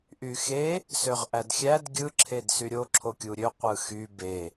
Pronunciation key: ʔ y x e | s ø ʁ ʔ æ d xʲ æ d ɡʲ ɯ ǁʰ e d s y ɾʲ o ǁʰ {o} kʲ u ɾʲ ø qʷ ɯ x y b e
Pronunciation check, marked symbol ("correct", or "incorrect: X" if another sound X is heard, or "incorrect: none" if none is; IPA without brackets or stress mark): correct